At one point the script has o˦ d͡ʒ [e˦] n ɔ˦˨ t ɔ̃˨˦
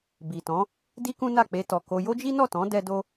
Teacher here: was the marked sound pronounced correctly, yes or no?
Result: no